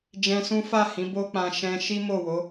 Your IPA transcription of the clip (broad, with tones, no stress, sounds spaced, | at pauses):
d͡ʒ ɛ̃˧ s ũ˦ f a˦˨ h ĩ˨˦ b o˦ k͡p ã˧ ʃ ɛ̃˧ ʃ i˦ m o˦˨ w o˨˦